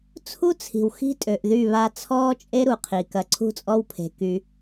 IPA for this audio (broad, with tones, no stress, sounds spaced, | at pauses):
t͡sʰ u˦ t͡sʰ i̤˨ w x i̤˦ tʼ ø˨ ʔ ð y˦˨ β a˦ t͡sʰ ɔː˦ t͡ʃʼ e˦ ɾ u˨ qʰ i˨ k ɐ˨ ǀʰ ṳ˦ t͡sʼ ɔ˦ w pʰ e̤˨ k y˦